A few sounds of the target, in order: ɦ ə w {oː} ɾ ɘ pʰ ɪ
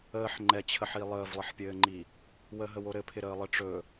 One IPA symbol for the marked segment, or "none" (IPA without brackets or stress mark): o